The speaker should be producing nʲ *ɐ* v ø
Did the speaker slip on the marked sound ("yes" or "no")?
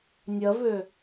no